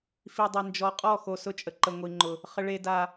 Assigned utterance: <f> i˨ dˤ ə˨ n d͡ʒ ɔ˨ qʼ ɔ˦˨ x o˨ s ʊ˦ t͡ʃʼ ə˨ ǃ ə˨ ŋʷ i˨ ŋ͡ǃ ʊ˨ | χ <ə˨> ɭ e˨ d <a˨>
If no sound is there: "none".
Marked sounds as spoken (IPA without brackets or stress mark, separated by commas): f, ə˨, a˨